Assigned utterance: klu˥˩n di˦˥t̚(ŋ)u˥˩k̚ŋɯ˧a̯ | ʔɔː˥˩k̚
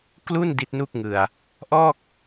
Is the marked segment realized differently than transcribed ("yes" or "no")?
yes